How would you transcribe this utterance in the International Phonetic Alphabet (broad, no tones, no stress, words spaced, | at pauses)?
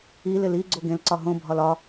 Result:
ilɪl i ɡ͡ǀoɡẽlǀɒ ɦõbʱɒl ɒ